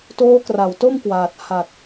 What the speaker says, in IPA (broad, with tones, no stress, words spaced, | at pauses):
toː˦˥kra˨˩wto˥˩mkwaː˨˩t̚ ha˨˩t̚